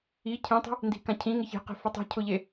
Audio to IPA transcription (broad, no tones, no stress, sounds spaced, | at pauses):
i cʰ ĩ tˤ e̤ | n d i̤ k ã cʰ ĩ ŋ ɪ ç e̤ q e̤ f ɪ tˤ i̤ cʰ ʊ ʎ e